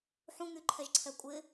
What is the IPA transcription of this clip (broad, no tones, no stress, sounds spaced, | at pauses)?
ħ ũ ŋ y ǃʰ ɛ ʒ ǀʰ ɛ kʷʼ ɪ